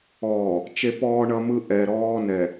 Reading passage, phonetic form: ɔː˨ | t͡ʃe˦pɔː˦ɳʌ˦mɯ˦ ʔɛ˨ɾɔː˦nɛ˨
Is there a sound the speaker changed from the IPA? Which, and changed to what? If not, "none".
none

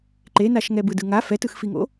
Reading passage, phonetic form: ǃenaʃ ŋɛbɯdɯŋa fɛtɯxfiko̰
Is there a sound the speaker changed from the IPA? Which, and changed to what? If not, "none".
k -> ŋ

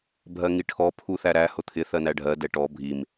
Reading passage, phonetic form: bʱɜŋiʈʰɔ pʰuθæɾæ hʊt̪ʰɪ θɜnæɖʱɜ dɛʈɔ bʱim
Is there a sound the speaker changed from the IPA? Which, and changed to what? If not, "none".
none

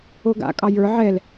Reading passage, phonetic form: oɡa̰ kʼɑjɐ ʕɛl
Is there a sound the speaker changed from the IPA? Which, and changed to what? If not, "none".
ɐ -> ə˞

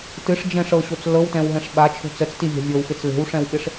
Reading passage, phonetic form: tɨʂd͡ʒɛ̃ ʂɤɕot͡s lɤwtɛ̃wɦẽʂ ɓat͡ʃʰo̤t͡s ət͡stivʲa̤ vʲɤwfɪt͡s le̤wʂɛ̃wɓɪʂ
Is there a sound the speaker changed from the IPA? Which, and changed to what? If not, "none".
ẽ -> ɛ̃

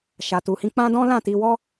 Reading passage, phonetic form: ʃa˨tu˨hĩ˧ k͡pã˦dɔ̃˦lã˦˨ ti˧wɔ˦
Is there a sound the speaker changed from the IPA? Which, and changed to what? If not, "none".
none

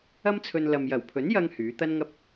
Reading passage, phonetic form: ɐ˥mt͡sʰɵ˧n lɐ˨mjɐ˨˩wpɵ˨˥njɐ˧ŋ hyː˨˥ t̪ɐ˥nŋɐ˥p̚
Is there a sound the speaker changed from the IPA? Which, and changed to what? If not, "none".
p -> pʰ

